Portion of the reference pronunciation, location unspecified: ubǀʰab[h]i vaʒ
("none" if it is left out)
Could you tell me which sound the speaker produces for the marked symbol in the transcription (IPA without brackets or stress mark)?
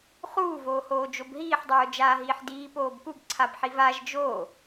ħ